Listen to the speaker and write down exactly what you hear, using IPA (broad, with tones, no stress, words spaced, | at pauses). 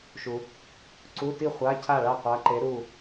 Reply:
ʃu˨ | ǀu˧˥˧ti˥˨χʷa˧˥˧cʰa˥˨ ɭa˥˨qʷa˧˥ǃe˧˥ɾu˥˨